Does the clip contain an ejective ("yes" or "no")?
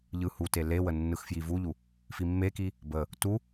no